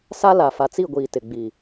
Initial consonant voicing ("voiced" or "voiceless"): voiceless